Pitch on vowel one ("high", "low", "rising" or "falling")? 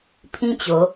high